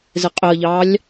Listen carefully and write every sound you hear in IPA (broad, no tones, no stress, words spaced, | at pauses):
zɪqʼɪɐ̯ʎɑːlʲ